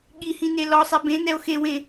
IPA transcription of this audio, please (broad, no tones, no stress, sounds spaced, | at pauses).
ɠ i h ĩ n e l ɔ sˤ ɛ b ẽ n ɛ o̯ x e w ẽ